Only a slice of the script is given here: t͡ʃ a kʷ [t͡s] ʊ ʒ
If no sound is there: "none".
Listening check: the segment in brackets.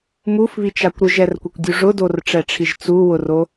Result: ɾ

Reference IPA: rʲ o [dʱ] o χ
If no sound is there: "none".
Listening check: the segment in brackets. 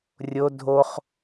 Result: dʱ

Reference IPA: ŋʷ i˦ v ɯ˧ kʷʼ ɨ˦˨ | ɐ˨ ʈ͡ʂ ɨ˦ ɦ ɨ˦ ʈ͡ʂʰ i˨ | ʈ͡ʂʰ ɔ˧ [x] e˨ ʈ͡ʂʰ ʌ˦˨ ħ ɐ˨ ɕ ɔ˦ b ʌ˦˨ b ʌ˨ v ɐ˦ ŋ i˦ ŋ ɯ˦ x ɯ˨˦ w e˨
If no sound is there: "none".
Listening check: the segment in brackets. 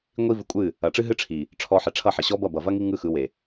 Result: ħ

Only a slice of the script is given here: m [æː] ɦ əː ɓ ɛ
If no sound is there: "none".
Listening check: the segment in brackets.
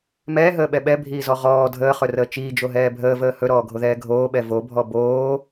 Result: ɛː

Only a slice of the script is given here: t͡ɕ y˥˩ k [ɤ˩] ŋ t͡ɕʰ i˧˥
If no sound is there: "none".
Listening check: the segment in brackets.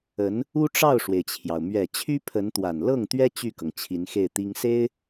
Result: ɤ˩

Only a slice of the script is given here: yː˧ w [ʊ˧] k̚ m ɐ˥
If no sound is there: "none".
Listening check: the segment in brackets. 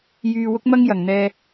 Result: ʊ˥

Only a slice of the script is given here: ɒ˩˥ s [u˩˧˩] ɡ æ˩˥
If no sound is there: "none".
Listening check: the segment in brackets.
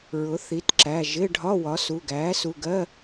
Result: u˩˧˩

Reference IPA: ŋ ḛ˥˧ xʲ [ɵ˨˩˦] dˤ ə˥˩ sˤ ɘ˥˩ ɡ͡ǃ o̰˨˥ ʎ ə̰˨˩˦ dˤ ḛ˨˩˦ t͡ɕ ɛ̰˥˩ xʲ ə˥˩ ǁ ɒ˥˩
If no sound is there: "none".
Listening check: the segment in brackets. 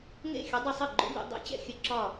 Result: ɵ˨˥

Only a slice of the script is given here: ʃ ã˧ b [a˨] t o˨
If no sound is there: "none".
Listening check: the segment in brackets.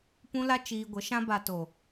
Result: a˨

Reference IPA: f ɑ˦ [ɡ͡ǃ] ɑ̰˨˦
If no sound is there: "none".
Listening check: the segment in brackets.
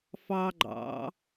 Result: ɡ͡ǃ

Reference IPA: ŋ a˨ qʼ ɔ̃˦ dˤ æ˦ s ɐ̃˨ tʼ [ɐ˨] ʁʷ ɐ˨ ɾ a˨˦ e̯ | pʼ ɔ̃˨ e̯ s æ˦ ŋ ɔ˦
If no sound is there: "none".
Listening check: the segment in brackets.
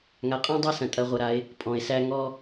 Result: ɐ˨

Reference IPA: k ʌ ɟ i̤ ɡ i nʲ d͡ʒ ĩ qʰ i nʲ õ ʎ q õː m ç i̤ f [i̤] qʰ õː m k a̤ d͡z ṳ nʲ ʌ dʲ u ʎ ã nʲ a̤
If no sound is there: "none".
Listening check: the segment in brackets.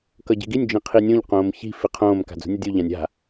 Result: i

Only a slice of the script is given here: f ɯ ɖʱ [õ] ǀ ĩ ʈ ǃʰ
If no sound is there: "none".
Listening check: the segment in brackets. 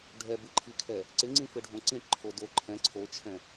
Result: õ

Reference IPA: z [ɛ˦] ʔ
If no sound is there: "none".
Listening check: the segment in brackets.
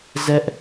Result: ɛ˦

